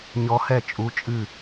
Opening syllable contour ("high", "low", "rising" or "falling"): rising